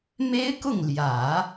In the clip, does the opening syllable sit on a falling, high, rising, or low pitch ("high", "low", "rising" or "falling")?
high